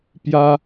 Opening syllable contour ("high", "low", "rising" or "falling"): high